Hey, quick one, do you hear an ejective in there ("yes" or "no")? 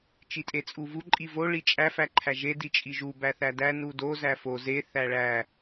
yes